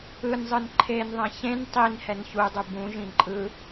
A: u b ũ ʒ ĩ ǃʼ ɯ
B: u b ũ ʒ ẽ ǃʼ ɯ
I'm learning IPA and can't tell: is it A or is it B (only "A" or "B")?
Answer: A